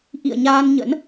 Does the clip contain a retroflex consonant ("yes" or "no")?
no